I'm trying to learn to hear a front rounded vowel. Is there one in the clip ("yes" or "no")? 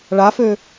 yes